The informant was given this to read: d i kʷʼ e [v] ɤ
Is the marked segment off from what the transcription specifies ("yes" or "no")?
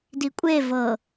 no